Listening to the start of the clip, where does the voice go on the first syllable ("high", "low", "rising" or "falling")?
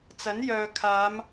rising